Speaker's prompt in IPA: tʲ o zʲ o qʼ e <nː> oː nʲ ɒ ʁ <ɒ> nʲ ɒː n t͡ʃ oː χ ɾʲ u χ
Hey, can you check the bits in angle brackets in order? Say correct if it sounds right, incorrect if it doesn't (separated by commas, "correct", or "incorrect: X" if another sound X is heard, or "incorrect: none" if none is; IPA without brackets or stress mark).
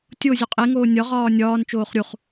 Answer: incorrect: ŋ, incorrect: ɒː